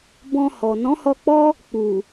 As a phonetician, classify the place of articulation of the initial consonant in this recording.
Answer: labial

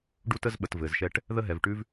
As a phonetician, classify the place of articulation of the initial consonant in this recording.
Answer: retroflex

